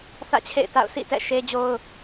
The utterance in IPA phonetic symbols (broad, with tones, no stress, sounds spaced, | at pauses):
θ ä̰˦˨ t͡ɕʰ ḛ˦˨ ɪ̯ t a̰˦˨ ʊ̯ sʰ ḭ˦˨ t ɛ̰˦˨ ʃ e˦ d͡ʑ o˦ ʊ̯